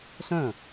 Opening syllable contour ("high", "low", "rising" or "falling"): falling